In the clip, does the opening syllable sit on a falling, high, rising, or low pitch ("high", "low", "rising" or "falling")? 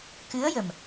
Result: rising